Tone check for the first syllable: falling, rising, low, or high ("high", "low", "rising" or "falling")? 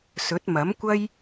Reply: rising